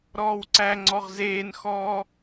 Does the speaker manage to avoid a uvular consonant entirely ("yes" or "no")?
no